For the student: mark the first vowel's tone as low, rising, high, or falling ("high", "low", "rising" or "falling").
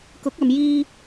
rising